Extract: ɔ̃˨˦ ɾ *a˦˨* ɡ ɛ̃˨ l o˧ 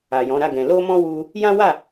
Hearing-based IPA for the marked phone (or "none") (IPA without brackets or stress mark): a˦˨